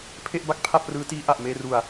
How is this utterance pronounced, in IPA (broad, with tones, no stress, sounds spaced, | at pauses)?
pʰ e˥˩ ʔ b a˥˩ k̚ pʰ a˥˩ p̚ r ɯː˦˥ t iː˦˥ ʔ a˨˩ ʔ m eː˧ r u˨˩ a̯